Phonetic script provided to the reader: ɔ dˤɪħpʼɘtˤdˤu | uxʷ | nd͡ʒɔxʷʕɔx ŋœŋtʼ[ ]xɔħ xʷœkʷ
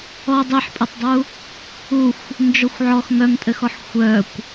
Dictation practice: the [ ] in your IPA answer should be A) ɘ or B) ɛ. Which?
A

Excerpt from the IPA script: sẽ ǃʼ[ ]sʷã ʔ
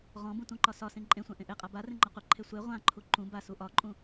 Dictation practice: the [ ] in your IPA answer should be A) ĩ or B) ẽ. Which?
B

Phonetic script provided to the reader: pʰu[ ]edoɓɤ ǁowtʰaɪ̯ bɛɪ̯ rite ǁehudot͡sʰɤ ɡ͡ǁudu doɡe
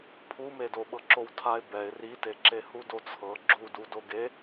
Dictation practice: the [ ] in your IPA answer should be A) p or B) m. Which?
B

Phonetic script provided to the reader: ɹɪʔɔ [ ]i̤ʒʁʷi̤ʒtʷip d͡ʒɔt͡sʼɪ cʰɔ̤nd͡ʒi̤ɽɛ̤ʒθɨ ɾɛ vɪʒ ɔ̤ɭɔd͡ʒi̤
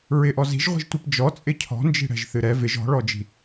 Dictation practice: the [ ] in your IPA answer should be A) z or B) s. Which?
A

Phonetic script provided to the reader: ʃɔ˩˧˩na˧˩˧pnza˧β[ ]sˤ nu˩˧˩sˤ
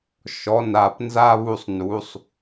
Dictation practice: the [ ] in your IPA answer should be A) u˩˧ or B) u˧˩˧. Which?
B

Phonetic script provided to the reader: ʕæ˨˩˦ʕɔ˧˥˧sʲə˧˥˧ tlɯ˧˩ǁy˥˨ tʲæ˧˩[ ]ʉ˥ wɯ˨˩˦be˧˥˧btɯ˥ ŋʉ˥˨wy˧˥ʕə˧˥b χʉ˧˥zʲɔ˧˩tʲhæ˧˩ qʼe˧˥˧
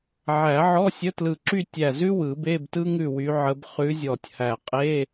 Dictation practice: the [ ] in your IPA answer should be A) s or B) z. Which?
B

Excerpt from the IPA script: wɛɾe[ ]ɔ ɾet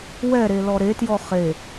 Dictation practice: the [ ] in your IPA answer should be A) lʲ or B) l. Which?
B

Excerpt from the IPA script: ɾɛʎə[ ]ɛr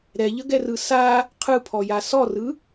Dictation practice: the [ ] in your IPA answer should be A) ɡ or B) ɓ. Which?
A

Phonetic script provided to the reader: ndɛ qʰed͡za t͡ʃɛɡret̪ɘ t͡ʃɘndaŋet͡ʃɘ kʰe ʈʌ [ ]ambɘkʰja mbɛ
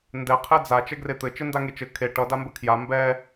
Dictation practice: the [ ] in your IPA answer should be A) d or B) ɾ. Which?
A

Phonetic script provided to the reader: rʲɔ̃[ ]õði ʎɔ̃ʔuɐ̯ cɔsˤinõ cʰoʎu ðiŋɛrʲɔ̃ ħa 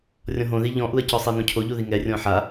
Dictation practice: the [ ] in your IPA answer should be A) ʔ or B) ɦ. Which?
B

